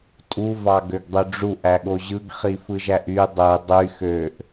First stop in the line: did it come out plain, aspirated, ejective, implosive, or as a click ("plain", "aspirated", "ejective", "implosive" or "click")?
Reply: ejective